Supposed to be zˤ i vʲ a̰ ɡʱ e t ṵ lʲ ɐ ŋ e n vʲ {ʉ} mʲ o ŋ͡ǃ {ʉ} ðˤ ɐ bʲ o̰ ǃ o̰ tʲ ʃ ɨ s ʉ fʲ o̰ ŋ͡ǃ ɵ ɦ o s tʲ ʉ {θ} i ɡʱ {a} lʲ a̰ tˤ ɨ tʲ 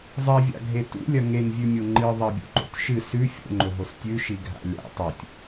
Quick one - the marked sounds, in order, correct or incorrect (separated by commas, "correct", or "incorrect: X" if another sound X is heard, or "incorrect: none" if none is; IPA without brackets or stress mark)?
correct, incorrect: ɨ, incorrect: ʃ, incorrect: a̰